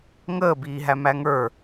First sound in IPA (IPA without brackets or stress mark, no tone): ŋ